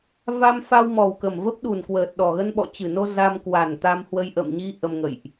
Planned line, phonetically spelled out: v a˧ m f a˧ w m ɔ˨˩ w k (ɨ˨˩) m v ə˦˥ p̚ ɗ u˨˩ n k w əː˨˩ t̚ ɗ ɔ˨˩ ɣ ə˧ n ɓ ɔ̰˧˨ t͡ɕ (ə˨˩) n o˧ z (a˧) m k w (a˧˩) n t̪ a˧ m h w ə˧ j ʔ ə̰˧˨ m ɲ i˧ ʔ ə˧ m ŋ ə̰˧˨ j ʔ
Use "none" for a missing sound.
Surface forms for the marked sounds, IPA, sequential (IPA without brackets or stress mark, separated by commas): ə˨˩, ɨ˨˩, a˧, a˨˩